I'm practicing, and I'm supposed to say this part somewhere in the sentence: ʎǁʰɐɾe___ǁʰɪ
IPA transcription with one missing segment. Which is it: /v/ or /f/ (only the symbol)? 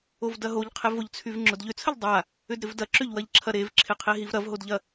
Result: v